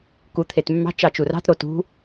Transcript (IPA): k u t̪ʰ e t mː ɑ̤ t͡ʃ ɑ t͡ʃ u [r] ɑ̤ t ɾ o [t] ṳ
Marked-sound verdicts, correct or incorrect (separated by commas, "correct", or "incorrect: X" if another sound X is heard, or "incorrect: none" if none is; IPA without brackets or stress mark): correct, correct